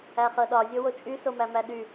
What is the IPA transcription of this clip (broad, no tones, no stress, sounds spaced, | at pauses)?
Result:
æ χ ɤ ɗ ɒ zʲ o w o t͡ʃʼ y s o m æ m æ ɗ y